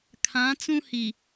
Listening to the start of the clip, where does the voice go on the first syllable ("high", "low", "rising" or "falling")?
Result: rising